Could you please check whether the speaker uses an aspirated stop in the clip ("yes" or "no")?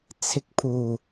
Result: yes